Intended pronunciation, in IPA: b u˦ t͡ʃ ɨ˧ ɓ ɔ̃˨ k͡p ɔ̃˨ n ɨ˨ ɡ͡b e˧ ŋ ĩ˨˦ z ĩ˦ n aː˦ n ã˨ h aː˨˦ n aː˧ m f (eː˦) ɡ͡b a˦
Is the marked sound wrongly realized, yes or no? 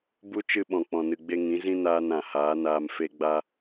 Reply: yes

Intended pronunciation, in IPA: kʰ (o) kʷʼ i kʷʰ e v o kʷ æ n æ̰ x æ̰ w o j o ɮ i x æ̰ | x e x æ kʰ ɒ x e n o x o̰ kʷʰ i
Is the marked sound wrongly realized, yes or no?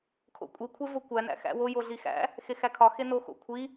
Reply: yes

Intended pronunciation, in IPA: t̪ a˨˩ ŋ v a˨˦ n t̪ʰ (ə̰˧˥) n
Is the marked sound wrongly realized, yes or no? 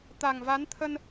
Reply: yes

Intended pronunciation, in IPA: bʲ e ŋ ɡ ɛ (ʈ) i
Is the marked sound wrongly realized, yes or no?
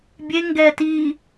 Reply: yes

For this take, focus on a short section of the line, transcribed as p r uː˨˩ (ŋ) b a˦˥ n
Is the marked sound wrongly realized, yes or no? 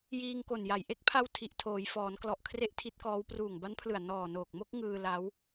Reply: no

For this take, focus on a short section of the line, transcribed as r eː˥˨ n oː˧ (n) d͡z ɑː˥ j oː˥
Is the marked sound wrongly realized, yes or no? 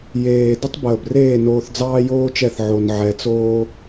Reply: yes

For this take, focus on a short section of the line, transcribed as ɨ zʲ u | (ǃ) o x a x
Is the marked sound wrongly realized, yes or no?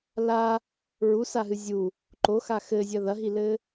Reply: no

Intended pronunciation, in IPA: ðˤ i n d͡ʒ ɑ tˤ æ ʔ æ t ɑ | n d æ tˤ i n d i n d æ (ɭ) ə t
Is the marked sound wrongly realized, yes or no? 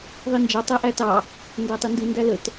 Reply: yes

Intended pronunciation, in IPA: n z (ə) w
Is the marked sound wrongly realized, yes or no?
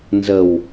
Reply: no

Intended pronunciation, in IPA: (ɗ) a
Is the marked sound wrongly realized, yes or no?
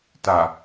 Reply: yes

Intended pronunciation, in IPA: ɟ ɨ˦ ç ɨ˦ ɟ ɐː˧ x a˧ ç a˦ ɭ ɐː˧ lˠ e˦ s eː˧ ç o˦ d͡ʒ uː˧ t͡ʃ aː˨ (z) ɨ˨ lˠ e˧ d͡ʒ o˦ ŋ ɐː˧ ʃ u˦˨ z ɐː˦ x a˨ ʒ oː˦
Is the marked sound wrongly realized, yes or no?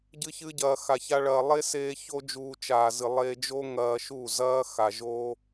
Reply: no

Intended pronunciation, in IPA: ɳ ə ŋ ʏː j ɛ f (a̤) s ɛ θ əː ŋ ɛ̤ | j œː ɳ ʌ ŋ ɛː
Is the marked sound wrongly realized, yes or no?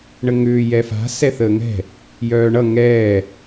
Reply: no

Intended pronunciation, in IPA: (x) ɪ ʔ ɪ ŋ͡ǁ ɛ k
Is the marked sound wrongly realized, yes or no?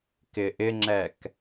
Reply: yes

